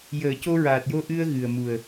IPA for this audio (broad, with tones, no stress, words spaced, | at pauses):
jəː˨˩˦ co˧ɹaː˨˩t̚jo˧ ʔɨ˧ə̯ɣɨ˨˩ə̯ mu˨˩ə̯